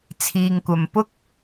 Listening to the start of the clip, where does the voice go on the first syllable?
low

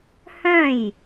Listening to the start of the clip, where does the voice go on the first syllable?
falling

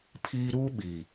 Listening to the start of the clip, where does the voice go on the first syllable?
high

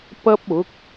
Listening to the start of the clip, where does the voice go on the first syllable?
high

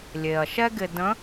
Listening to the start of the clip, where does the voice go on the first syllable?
low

